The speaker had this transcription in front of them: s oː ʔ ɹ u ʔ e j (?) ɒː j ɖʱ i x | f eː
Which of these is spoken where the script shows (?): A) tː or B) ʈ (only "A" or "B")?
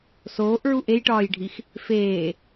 B